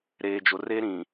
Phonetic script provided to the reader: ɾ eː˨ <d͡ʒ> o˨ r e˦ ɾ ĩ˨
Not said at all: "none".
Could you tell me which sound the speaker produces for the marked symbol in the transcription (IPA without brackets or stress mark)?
d͡ʒ